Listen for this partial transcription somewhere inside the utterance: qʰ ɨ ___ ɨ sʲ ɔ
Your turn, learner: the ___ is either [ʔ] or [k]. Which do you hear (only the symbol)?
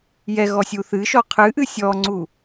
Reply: ʔ